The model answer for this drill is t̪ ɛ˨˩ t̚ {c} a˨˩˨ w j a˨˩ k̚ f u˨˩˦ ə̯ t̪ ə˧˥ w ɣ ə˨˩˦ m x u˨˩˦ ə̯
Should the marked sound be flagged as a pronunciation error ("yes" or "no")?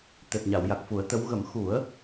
yes